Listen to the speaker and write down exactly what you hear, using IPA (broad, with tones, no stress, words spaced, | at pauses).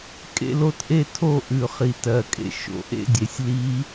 kʼḛ˥˧l o˥˧tʔe˥˧tʰo˥˧ ʔʉ˨˩χi˨˩tɜ˨˩kʼḛ˧ ʃo̰˨˩˦ʔḛ˥˧dʲe˨˩sʲ li˧˥